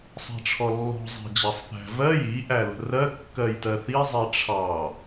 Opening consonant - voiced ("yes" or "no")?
no